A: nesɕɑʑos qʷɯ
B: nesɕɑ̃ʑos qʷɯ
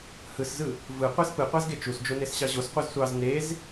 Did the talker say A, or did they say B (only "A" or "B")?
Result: A